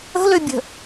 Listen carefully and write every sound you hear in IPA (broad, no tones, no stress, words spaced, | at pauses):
ə̤løbʲə̤